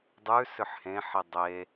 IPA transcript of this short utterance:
dˤ ʉ s ʏ ħ h ẽ ħ i dˤ e

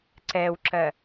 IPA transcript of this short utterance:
ǀ ɛː w ǁ ɜ

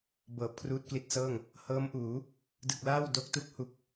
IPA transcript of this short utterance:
b ɤː˨˩ p̚ kʰ r uː˦˥ t̚ k l i˦˥ t̚ s ɤː˥˩ ŋ | h ɤː˦˥ m ʔ uː˩˦ | d ɯ˨˩ k̚ l aː˥˩ w d o˦˥ k̚ t u˥˩ k̚ h u˦˥ k̚

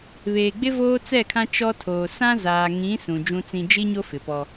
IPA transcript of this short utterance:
β eː˨ ɡ͡b ɪ˦ v oː˦ t͡s ɛ˦˨ kʰ ã˦ t͡ʃ ɔ˦ tʰ oː˨ s ã˦ z aː˨ ŋ ĩ˨˦ s ũ˨ d͡ʒ ũ˦ t͡s ĩ˦ d͡ʒ i˦ ɲ o˦ f ɪ˨ p ɔ˦

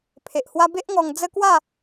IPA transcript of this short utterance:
pʰ e˨ ʔ h w a˦ b e˦ ʔ ŋ ɔ˧ ŋ d͡z ə˦ k w a˥˧

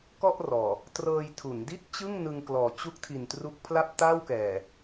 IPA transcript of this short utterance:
k ɔ˥˩ ʔ r ɔː˨˩ | t r ɤː˧ j tʰ u˩˦ n d i˥˩ t̚ t͡ɕ ɯ˥˩ ŋ n ɯ˧ ŋ k l ɔː˨˩ t͡ɕ u˦˥ k̚ tʰ i˨˩ n t r u˦˥ k̚ pʰ l a˥˩ p̚ t a˥˩ w k ɛː˨˩

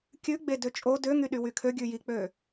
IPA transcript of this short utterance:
kʲ ʉ ɡ͡b e d ø t͡ʃʼ o d ø ŋ y ɗ y w y kʰ ø ɡʲ ʉ j i k͡p ø

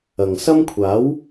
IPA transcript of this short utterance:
ɐ˨ ŋ s ɐ˥ m kʷʰ aː˨˥ w

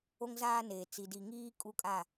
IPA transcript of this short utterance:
o˦ ŋ z aː˦ n eː˨ t͡s i˨ d i˨ ŋ iː˦ kʼ u˦ kʼ a˦˨

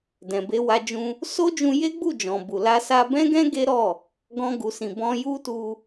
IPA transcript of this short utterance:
d ɛ̃˨ b e˧ w a˧ d͡ʒ ũ˧ | s o˦ d͡ʒ ũ˧ j e˦ ɡ͡b u˦˨ d͡ʒ ɔ̃˨ b u˨ l a˧ s a˧ b ɛ̃˦ ɡ ɛ̃˦ ɡ e˦ ɾ ɔ˦˨ | ɡ ɔ̃˧ ɡ u˨ s ĩ˨ b ɔ̃˧ j u˦ t u˧

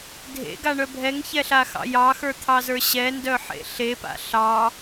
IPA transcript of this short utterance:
dʱ ḛ ɡ a ɳ œ bʱ ɛ ŋ ç ɛ ɬ a x ɑ̰ j ɑ x ə˞ t̪ʰ ɑ z ə˞ ɕ ɛ n d œ ħ ḛ ɬ e p a̰ ɬ ɑ

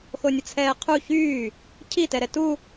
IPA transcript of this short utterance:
x o nʲ ə t͡sʰ ɛː qʰ u ç yː | cʰ i t ɛ ɾ ɛ t u

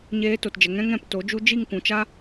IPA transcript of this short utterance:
ɲ eː˧ t o˨ t d͡ʒ ə˨ ŋ ɛ̃˦ ŋ ɛ̃˦˨ p t o˨˦ d͡ʒ u˧ d͡ʒ i˦˨ ŋ kʷ ũ˨ t͡ʃ a˦

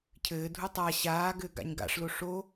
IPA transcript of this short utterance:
cʰ ɘː dʱ u tˤ a ɕ aː ɡ ɘː ɡ a̰ ɲ ɡ a̰ ʂ l o ʂ o

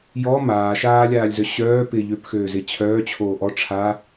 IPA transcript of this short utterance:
j ɔ m aː ʃ aː lʲ aː lʲ z œ ɕ œː p ɪ ʎ ø p x øː z ɪ t͡ɕʰ œː t͡ɕʰ oː ʔ ɔ ʈ͡ʂʰ a

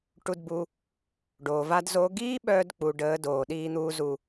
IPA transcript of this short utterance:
ʈ u˧ d b u˧ | ɖ oː˨ v a˦ d z oː˦ ɡ iː˦ ɓ œː˧ d k͡p u˨ ɖ əː˨˦ d oː˨ ɗ iː˦ n̪ uː˦ z u˧

